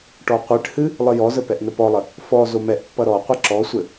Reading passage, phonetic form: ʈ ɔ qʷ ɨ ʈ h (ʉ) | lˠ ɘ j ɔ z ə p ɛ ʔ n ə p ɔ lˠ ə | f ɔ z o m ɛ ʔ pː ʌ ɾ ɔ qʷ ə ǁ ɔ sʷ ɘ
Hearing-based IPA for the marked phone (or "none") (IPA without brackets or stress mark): ɨ